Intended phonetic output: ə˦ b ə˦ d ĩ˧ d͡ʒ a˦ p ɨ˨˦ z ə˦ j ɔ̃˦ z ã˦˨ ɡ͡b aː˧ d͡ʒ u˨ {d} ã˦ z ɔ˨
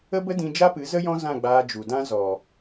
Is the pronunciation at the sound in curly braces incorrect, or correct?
correct